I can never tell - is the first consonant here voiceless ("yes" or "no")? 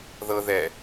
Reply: no